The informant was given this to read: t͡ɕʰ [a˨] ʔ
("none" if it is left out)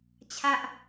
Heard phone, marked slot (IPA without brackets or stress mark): a˦